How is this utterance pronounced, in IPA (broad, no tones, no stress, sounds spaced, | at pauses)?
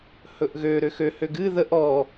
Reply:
h ɵ ʔ ɣ ø ɾ ø x ø h ø ɡ ɨ ð ə ʔ ɔ